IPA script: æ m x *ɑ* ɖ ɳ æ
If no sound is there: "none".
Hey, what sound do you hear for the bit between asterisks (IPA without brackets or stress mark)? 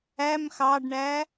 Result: ɑ